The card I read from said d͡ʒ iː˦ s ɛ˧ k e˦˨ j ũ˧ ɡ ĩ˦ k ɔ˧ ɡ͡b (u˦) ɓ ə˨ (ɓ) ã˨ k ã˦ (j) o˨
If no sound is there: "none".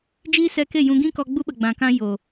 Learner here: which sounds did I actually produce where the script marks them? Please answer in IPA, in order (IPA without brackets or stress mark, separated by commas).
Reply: u˦, ɡ͡b, j